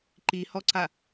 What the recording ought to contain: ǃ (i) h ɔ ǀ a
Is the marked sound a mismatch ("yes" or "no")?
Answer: no